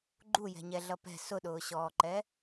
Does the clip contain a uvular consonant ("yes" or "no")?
no